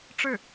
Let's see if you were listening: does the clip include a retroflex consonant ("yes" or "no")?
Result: yes